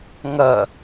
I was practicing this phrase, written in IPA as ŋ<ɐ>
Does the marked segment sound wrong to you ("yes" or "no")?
no